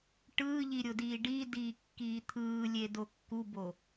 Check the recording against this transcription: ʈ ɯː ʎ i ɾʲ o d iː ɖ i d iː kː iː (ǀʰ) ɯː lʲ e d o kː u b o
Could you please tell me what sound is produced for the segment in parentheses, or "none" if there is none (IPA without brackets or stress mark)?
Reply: t̪ʰ